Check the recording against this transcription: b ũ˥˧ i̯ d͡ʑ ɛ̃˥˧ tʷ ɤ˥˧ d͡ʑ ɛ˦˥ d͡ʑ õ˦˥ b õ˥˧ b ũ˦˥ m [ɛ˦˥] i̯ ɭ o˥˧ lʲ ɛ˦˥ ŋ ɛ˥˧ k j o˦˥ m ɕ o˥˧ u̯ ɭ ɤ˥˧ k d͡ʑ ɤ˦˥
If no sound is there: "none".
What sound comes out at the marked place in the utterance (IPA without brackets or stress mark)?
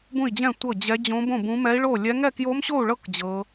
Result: ɛ˦˥